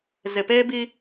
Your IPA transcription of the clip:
z ɪ˨ p eː˦ b i˦

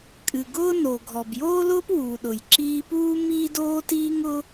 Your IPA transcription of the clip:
kʼ ɨ˩ ɡ ʊː˥ n o˩ ɡʱ ɔ˩ b j oː˥ l ʊː˥ p w u˩ ɗ ʊ˩ j ǁ iː˥ p uː˥ m iː˥ d oː˥ t iː˥ ŋ ʊ˥

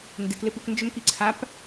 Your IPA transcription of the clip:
n d ɪ k l ɪ p u k n d͡ʒ ʏ m k i ǀʰ a p

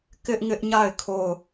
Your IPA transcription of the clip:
k ɪ˦ ʔ ŋ ɪ˦ ʔ ɲ a˦˨ ɪ̯ kʰ o˦˨ ʊ̯

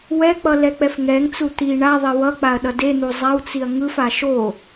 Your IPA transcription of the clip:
w ɛ k͡p ʌ l ɛ k͡p ɛ f ŋ ɛ ŋ t͡s u t̪ i ɳ a ðˤ e w ʌ k͡p a ɐ̯ ɗ ʌ d e n̪ u zˤ a w t͡s i ɐ̯ ŋ ɯ f a ʃ o

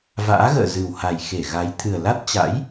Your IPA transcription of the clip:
v a̰ː˧˥ ɣ ə̰ː˧˨ z ɨ˨˩ w h a˨˩ j x e˧˩ ɣ a˨˦ j t̪ʰ ɨ˨˩ ə̯ l a˦˥ t̚ t͡ɕ a̰˧˥ j

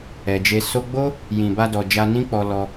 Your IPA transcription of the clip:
ɛ˨ d͡ʒ e˧ s o˧ ɡ͡b o˦ | j ĩ˨ b a˧ d ɔ˨ d͡ʒ a˧ n ĩ˦ k͡p ɔ˧ l ɔ˧

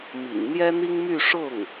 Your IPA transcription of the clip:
m ḭ˨˩ ŋ n̪ j ɛ˥ n̪ i˥ ŋ m y˥˧ ʂ ʊ˥˩ ŋ

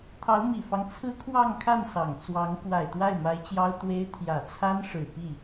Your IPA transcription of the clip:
t̪ʰ ɑ˧˥ ʊ̯ m i˨˩ f ɑ˦ ŋ t͡sʰ ɹ̩˥ kʰ w ɑ˥˧ ŋ kʰ a˥˩ n s ɑ˨˩ ŋ t͡s w ɑ˧˥ ŋ k w a˨˩ ɪ̯ t̪ w a˥˩ ɪ̯ m a˧˥ ɪ̯ t͡ɕ j ɑ˥ ʊ̯ t̪ w e˥ ɪ̯ t̪ʰ j ä˨˩ t͡sʰ a˥ n ʂ ɻ̩˨˩ p i˥˩

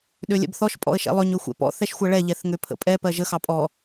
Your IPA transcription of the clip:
ɗ ø lʲ ɛ̰ b θ ɔ ʃ pʼ ɔ̰ ə̯ ʃ ɛ̰ lˠ ø ɲ ø xʷ ɛ̰ p ɔ̰ θ ɛ ʃ xʷ ɜ ɭ ɛ ʎ ɛ θ ŋ ø pʰ ə̰ pʼ ɛ p ɜ ʒ ə x ɑ pʼ ɔ

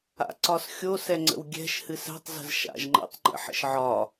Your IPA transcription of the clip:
a̰ ǀ ɒ s xʲ o s ɛ ŋ͡ǀ ə̰ w ɡʲ ɛ̤ ʃ h ɨ s ɛ̤ tˤ z ə̤ z ʃ a̰ ʒ ŋ͡ǃ ə̰ tˤ ŋ͡ǃ ə̰ ħ ə̰ ʃ ʕ ɒ

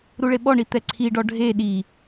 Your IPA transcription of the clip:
ɾ u ɭ e ɓ ɔ ɳ i t̪ ɛ ǀʰ i ɖ ɔ ɖʱ e ɗ i

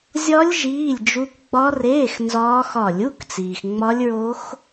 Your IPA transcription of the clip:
zʲ ɒ˦˥ lʲ ʒ iː˧˥˧ lʲ d͡ʒ u˦˥ k ɡ͡b ɒ˦˥ r eː˧˥˧ x n z ɒː˦˥ x ɒ˦˨ lʲ u˧˥˧ k t͡s iː˨ x ŋ͡m ɒ˦˥ lʲ ɹ o˦˥ x

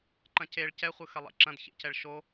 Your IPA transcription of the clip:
ǃ ɐ̃ c e ɭ c ɛ χʷ ɯ x ɐ lˠ ḛ ǁ ɐ̃ d ç ḛ c ɛ ɭ ʃ o

